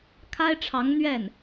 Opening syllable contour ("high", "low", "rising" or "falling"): high